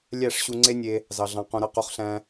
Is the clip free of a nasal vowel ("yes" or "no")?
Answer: no